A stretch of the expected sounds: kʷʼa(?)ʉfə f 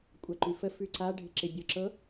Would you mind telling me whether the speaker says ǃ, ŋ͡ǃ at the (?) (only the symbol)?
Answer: ǃ